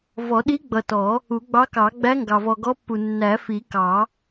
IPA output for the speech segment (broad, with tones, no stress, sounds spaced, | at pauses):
v ɔ˨˩˦ ɗ i˧˥ ɡ͡b ʌ˨ t ɔ˨˩˦ | u˨˩˦ ɡ͡b ɑ˧˥ k ɑ˨˩˦ ɡ͡b æ˧˥ ŋ ɡ ɑ˨ v ɔ˨ ɡ ɔ˧˥ pː u˨ nː æ˨˩˦ f i˨˩˦ k ɑ˨˩˦